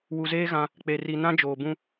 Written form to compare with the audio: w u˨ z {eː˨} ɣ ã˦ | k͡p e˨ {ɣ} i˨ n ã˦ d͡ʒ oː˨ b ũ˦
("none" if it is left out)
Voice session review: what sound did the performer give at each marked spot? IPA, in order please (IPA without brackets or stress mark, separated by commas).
eː˦, r